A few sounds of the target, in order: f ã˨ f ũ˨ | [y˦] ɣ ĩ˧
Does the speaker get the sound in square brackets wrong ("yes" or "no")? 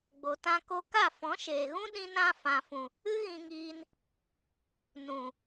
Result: yes